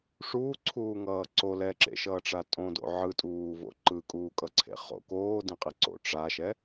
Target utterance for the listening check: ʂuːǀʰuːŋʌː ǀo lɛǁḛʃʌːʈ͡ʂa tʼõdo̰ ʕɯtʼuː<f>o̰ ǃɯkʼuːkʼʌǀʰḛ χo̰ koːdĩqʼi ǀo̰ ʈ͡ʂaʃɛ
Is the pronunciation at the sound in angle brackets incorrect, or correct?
incorrect